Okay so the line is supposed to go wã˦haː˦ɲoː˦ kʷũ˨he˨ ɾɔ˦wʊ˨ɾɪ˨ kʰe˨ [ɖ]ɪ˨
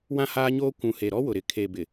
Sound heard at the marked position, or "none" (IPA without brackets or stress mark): b